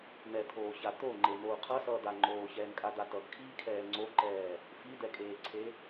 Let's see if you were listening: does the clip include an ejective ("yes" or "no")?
yes